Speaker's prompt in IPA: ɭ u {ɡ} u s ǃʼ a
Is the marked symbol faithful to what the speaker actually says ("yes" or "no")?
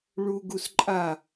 yes